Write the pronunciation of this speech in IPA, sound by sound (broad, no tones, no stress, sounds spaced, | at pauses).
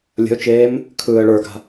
lʲ ə̤ ʊ̯ t͡ʃ eː m | kʰ ɯː ə̯ ɭ ə˞ ɡ a̤